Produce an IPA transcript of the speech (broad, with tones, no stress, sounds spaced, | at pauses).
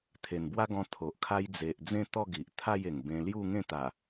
t̪ʰ e˨˩ n b w a˦ ɡ ɔ̃˧ t̪ʰ o˨ ʔ kʰ a˦ j d͡z e˨ ʔ d͡z ẽ˥˧ t̪ ɔ˥˧ ɡ i˨ ʔ t̪ʰ a˥˧ j e˨˩ ŋ b ẽ˧ l j u˥˧ ŋ ẽ˥˧ t̪ a˨˩